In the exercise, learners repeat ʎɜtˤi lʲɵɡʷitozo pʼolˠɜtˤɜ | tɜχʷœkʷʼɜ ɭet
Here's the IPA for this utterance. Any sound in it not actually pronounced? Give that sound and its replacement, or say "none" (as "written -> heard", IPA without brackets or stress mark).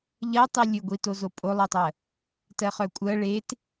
χʷ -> χ